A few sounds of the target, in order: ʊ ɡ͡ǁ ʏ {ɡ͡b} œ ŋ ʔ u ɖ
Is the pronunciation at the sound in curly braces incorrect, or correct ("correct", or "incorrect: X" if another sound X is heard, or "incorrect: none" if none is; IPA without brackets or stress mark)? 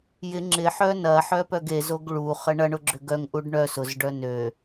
incorrect: ɡ